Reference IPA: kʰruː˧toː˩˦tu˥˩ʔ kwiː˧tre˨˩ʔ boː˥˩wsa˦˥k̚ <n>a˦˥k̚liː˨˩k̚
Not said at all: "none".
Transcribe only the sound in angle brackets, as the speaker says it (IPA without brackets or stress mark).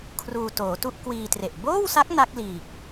n